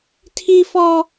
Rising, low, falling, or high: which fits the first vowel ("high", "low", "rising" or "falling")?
high